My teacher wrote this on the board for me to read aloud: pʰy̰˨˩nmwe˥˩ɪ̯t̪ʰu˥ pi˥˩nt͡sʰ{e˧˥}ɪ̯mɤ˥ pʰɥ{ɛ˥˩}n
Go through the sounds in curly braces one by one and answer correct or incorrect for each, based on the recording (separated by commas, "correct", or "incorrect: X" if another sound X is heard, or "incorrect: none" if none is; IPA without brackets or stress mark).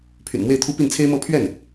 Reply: incorrect: e˥, correct